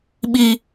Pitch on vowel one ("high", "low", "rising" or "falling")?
high